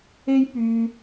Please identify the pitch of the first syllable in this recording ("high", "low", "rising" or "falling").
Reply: high